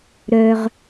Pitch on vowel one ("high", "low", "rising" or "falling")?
high